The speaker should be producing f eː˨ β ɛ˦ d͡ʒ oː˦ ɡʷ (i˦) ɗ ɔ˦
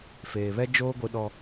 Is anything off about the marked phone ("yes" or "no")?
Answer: no